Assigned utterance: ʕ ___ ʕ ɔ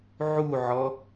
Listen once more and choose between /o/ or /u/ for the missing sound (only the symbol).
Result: u